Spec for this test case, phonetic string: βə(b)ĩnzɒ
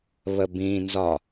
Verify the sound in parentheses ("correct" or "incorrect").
correct